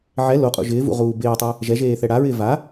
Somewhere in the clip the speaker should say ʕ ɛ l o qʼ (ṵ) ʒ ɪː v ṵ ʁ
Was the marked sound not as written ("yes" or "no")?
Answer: no